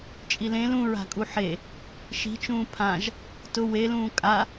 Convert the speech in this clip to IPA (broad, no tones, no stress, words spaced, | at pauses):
t͡ʃʼilẽl ũɹa̤ kʼuħe | ʃi̤t͡ʃũː pʰãʒ | tʊ welũː kʼa